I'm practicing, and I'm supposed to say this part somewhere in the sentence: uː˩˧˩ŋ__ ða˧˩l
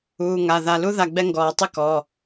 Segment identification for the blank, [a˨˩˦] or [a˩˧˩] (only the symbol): a˩˧˩